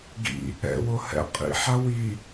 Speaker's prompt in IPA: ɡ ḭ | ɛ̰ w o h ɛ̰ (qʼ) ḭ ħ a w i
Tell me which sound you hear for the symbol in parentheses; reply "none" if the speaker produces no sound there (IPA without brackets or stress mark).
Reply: qʼ